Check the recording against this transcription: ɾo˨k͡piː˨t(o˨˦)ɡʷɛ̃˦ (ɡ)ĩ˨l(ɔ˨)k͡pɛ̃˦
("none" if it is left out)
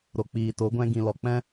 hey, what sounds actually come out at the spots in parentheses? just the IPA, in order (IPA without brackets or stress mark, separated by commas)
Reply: o˨˦, ɡ, ɔ˨